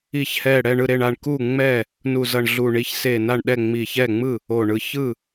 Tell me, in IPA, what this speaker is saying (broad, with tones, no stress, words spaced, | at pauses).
i˧˩çhɛ˧˩ ɽɛ˥˩ɳɯ˥˩ɾe˥˩ɳ a˥˩ɳku˥˩ ŋ͡mɛ˥˩ | nu˧˩zʌ˧˩ɳ ɮu˧˩ɳi˧˩ç se˧˩ na˥˩ɳɗɛ˥˩ŋ͡mi˧˩ç ɛ˥˩ŋ͡mɯ˥˩ | o˧˩ɳɯ˧˩ çɯ˥˩